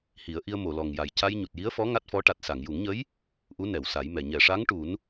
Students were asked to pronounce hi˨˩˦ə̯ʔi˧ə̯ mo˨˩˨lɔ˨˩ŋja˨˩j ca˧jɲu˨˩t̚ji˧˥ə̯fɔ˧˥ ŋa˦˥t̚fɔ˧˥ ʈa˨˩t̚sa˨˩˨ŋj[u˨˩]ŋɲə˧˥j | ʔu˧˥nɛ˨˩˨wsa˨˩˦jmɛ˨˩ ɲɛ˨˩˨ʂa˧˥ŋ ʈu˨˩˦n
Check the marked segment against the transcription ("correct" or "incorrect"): incorrect